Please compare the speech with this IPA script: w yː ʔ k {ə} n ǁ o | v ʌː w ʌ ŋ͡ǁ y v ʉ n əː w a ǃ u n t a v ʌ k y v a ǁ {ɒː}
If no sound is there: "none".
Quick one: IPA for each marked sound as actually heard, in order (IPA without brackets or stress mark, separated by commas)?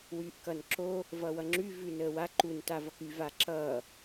ʌ, ʌː